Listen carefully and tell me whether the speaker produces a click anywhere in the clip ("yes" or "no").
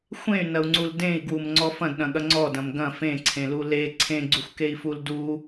yes